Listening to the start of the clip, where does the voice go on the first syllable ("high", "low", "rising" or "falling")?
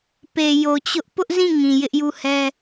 low